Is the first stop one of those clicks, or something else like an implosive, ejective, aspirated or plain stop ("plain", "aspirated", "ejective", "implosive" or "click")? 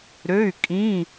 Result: ejective